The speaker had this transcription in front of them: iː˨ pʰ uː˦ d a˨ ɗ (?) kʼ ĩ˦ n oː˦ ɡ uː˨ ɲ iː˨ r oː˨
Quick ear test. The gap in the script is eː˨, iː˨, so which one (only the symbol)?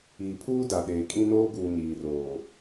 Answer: eː˨